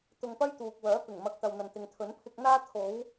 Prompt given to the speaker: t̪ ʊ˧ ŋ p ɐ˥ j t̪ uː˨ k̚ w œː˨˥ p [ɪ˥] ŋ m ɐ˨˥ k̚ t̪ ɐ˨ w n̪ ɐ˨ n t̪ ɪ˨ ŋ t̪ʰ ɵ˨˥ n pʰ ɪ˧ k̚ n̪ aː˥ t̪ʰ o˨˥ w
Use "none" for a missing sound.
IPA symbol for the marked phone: ɪ˨˩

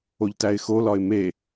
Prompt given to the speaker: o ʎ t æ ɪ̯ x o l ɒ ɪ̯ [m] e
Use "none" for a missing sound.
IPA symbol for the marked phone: m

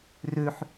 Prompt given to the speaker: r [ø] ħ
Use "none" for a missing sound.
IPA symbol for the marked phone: ø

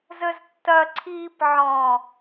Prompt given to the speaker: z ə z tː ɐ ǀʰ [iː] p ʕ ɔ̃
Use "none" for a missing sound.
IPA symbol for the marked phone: iː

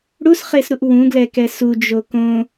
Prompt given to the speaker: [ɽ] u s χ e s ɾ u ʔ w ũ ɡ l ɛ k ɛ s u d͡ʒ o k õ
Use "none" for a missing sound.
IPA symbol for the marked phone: ɽ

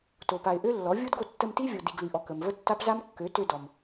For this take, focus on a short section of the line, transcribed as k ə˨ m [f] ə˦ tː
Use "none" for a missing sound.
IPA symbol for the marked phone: v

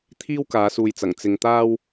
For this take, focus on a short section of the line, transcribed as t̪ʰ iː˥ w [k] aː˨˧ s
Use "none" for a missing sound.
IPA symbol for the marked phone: k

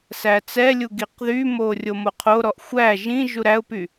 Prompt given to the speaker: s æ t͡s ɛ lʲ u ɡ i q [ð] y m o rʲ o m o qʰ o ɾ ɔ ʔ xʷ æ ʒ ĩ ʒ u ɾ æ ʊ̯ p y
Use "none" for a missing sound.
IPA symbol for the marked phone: ð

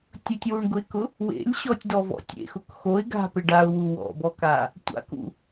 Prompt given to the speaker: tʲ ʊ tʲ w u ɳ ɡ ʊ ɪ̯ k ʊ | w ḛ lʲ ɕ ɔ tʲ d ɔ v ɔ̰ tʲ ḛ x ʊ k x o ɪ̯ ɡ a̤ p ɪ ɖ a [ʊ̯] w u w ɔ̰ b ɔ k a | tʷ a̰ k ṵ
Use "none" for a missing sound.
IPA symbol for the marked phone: ʊ̯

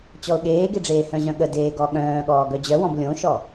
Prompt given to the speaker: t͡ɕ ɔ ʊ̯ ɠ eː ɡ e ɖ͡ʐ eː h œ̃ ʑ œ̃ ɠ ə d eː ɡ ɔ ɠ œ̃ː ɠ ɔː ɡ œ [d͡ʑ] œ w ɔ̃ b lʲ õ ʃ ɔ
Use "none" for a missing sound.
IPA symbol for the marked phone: d͡ʑ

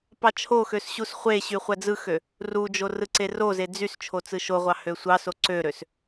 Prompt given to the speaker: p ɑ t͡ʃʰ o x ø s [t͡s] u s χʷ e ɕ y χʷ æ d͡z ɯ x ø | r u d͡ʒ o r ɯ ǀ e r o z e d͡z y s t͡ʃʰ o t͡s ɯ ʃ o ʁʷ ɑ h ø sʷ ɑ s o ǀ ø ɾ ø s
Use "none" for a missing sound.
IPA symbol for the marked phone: ɕ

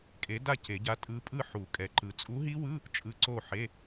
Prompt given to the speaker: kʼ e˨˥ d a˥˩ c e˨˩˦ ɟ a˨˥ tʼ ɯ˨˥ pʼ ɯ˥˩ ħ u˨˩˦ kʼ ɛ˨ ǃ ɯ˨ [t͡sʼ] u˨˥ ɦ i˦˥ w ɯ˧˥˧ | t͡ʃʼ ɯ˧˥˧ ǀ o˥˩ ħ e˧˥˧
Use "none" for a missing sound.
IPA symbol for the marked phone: t͡sʼ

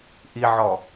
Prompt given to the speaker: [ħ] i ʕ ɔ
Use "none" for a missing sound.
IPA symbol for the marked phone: ʔ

